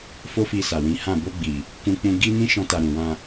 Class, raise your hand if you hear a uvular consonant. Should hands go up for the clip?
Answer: no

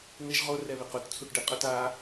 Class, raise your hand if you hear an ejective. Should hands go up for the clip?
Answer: yes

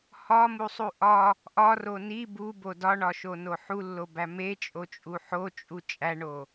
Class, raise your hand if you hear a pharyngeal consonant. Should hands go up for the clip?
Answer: yes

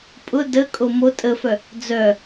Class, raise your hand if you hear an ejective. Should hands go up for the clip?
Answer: yes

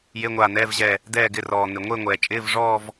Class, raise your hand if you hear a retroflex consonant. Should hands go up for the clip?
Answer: yes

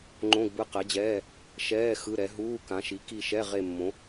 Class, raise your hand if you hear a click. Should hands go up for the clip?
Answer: yes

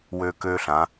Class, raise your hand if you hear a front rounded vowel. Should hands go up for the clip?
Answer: yes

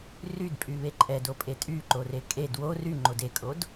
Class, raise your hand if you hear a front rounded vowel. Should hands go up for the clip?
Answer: yes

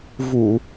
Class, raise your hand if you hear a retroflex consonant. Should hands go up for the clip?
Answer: no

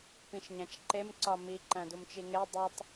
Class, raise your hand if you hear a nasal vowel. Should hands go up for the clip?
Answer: yes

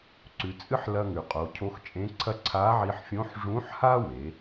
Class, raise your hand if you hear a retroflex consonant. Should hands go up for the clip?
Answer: yes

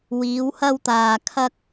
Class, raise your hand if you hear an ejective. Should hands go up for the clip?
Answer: no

